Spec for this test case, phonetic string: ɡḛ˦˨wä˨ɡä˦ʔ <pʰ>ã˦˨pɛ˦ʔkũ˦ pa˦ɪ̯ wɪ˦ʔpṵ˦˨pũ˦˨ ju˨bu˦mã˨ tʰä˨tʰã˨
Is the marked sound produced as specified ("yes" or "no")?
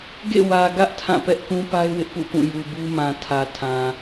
no